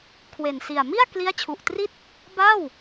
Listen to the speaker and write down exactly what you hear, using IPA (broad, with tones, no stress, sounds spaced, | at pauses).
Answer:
kʰ w e˨˩ n s i˨˩ a̯ m i˥˩ a̯ k l i˦˥ a̯ t͡ɕʰ u˨˩ ʔ t r i˥˩ t̚ | b a˥˩ w